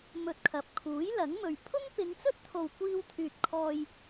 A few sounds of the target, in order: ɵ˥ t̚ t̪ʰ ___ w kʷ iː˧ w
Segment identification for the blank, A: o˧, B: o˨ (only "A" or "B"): B